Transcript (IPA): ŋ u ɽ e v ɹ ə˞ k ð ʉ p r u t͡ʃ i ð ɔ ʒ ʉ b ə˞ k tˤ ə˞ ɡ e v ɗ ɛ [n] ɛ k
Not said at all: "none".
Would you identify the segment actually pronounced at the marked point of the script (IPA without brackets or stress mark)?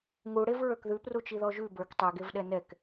n